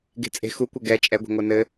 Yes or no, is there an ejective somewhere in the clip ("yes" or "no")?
yes